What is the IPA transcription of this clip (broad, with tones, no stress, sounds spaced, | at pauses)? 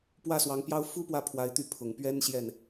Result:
p w ä˥˩ s w ɑ˧˥ ŋ p j ɑ˥ ʊ̯ f u˥ p w ä˥˩ pʰ w a˧˥ ɪ̯ t̪ y˧˥ pʰ ʊ˨˩ ŋ p ɥ ɛ˥ n ɕ j ɛ˥˩ n